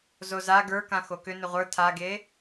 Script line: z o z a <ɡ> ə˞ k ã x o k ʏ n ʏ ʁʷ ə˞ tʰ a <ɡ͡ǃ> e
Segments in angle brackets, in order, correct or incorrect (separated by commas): correct, incorrect